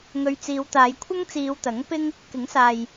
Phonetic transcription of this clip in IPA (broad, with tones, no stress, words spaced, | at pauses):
ŋɵ˧ɥt͡siː˨˧wt̪aː˨˧j kʷʰɐ˥ŋt͡siː˨˧wt̪ɐ˨˥ŋ pɪ˥ŋ | kɪ˨˥ŋsaː˨j